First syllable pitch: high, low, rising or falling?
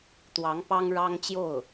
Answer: rising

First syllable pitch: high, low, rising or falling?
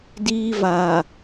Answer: high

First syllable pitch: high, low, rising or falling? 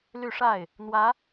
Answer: falling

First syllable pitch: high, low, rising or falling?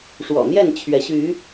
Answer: low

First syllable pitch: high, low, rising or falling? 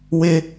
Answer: high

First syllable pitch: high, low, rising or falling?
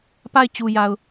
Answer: falling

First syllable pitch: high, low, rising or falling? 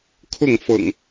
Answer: falling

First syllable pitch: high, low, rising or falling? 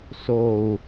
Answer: low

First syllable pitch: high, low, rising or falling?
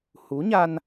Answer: rising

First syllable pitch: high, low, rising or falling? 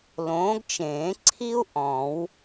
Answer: rising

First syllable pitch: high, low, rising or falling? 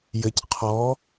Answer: low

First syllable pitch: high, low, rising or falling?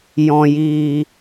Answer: low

